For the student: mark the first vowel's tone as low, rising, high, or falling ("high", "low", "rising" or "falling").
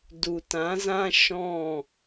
low